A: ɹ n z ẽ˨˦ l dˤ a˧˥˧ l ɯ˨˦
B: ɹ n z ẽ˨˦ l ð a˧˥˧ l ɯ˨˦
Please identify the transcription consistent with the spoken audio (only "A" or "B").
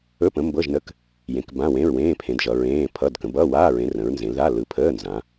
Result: B